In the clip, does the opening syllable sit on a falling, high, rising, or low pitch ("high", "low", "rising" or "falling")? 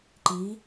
rising